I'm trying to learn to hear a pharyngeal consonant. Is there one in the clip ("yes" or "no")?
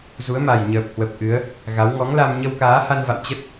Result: no